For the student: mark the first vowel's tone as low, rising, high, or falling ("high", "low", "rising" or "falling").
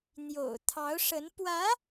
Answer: low